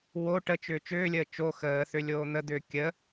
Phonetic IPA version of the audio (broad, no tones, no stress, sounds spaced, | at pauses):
w o ʈ ə t͡ʃ ʏː t͡ʃ ʏː lʲ əː t͡ʃ o x əː θ ʏ lʲ oː n̪ ə d̪ ʏː kʲ ə